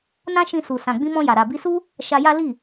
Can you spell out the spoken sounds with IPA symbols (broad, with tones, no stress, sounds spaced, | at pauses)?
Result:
n ã˦ ʃ ĩ˧ s u˨ s ã˨ ɡ͡b ĩ˧ m ɔ̃˧ j a˨ ɾ a˨ b i˧ s u˦ | ʃ a˧ j a˦ l i˦˨